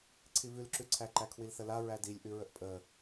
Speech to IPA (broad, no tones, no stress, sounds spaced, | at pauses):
ǀʰ i v ʉ l ǁ ʉ ǀʰ æ ǃ æ kʰ w i l θ ə l a ɹ æ d i lʲ ʔ ʉ ɹ ə ʔ pʼ ə